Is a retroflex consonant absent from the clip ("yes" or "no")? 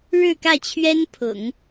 no